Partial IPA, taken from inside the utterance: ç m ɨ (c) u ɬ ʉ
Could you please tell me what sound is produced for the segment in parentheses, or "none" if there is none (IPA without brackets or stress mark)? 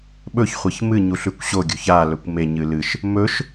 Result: ɲ